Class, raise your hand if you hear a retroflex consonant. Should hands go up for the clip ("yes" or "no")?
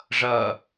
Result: yes